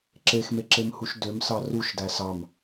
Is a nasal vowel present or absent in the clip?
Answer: absent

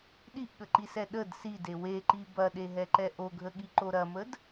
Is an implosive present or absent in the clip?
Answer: present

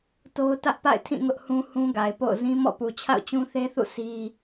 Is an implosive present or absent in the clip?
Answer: absent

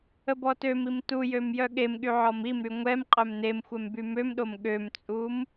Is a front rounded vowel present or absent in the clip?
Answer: present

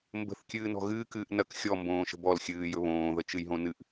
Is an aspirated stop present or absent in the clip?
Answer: absent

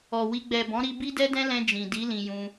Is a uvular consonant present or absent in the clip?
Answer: absent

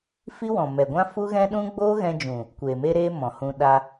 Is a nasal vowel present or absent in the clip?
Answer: present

